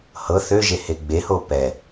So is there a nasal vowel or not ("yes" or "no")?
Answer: no